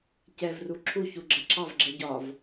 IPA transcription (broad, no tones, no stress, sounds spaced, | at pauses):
c ɛ v r u ǁʰ u ç u ɡ͡ǁ ɜ ǁʰ ɑ v ɡ͡ǁ ɜ ɟ ɒ v